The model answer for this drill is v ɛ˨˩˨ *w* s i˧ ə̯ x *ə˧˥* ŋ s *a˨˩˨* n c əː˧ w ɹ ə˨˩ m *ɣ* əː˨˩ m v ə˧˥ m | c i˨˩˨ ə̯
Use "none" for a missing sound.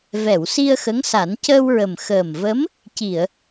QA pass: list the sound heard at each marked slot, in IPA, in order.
w, ə˧˥, a˨˩˦, x

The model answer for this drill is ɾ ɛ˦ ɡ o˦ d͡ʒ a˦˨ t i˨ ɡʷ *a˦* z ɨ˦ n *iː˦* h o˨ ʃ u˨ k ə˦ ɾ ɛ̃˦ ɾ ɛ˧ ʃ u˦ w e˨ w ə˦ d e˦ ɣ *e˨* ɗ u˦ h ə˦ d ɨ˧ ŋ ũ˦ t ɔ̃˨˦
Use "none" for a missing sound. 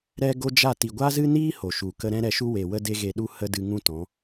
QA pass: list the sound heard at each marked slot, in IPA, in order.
a˦, iː˦, e˧

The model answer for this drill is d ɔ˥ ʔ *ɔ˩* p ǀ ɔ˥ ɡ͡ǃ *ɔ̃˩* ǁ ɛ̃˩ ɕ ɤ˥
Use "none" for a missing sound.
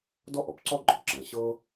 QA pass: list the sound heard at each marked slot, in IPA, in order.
ɔ˩, ɔ˩

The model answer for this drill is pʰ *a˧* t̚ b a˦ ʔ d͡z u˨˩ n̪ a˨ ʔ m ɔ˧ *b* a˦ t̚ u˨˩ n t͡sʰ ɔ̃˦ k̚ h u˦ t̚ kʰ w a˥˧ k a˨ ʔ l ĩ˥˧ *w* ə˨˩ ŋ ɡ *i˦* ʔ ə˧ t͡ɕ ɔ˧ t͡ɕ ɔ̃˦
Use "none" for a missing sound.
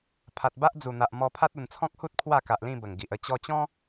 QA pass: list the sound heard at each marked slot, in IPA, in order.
a˨, pʰ, b, i˨

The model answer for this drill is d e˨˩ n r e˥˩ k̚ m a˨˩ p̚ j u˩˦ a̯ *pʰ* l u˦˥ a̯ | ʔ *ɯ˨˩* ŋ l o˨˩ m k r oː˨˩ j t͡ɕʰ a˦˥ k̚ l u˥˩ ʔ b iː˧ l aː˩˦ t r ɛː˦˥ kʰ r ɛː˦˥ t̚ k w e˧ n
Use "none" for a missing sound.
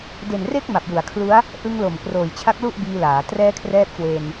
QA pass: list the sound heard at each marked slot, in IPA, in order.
kʰ, ɯ˧

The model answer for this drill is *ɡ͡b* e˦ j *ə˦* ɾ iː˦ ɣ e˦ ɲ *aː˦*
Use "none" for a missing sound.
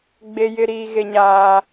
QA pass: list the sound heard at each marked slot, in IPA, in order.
ɡ͡b, ɪ˦, aː˦

